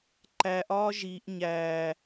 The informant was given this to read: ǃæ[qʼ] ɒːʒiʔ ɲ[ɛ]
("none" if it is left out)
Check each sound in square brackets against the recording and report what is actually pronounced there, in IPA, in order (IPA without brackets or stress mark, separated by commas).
ʔ, æ